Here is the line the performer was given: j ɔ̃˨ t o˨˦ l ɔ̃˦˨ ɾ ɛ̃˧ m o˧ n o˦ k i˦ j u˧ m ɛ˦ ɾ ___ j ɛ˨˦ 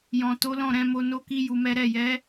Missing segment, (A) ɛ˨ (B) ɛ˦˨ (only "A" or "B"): B